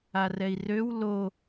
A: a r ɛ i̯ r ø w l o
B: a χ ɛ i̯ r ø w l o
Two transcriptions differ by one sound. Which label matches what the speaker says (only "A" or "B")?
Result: A